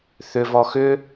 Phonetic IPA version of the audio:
θʏvɔ xʏ

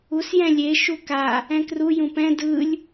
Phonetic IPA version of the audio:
us jɛ̃lʲe ʃuka | ɛ̃kru jũpɛ̃ dɯlʲ

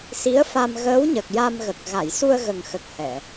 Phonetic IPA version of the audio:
si˧˥ə̯fa˧m ɣəː˧˥wɲə˨˩k̚ ja˧mɣə˨˩k̚ ɣa˨˩˨jsu˧ə̯ɣə˨˩ŋxə˨˩k̚ hɛ˨˩˨

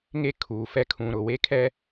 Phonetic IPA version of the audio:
ŋe˦ kʰuː˨ fɛ˨ kʰũ˨ɾʊ˨ we˦kʰɛ˦

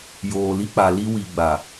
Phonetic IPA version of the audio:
joː˨li˦k͡pa˨ li˦wi˨ ɡ͡ba˨

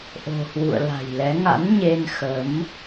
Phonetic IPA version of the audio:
ʔo̤˨˩hwṵ˧˨ə̯la̤˨˩jlɛ˨˦ ŋa̰˧˥nɲe˧nxə˨˦m

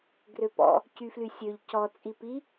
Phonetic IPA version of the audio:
ɡrøpɔ̰ | cyflysʲøʎ cɔ t͡sʼipi

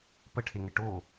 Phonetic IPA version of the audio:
pəʈʰeŋɘ ʈo

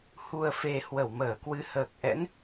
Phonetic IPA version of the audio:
hu˨˩ə̯fe˨˩ hwə˧˩wməː˧˩kwɨ˧ həː˨˩k̚ʔɛ̰˧˥n

